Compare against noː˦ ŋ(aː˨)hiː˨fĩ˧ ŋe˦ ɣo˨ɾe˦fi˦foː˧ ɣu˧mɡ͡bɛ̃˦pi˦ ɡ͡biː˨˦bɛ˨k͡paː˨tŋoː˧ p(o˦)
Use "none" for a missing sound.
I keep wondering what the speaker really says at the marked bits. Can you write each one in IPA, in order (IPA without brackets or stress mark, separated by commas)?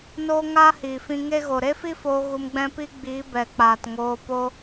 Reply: aː˦, o˦